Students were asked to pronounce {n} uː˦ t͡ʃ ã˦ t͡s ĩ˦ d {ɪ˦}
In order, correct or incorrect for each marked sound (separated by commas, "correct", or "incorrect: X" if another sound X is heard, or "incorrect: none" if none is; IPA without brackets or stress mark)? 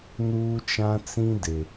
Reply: correct, incorrect: ɪ˨